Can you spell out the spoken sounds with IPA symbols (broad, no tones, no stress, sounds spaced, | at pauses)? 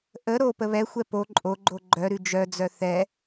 ʔ ə ɾ o p ə β ɛ xʷ ɛ p o ǃʼ o ɡ͡ǃ o ɡ͡ǃ œ ɾ ʉ d͡ʒ œ d͡z œ θ ɛ